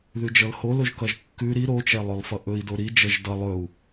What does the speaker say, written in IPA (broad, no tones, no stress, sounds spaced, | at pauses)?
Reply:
ð ʉ d͡ʒ ʌ l h o l o ʒ k ʌ ʒ kː ʉ ɾ i ɾ o t͡ʃ ɛ lˠ ɵ lˠ f ʌ ʔ ɵ i̯ d o ɾ i d͡ʒ ʌ ʒ d ʌ lˠ ɵ u̯